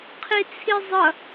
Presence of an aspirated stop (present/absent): present